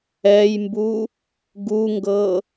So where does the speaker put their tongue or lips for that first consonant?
palate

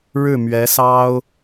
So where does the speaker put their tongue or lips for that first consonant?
retroflex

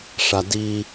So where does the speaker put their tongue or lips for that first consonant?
retroflex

